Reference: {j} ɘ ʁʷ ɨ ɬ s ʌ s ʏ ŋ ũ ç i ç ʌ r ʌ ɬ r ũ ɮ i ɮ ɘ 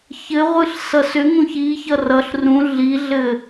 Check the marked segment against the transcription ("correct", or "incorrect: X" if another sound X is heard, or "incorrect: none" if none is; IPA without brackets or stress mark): incorrect: ç